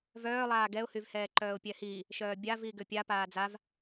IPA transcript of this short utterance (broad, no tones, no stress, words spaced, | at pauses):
vœːlˠaː ɡɛʊ̯hyvhɛː ǃœːʊ̯pʲɛhi | ʃœːbʲa viɡʏpʲa paːd͡zav